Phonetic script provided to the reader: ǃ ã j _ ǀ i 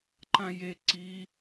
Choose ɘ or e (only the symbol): e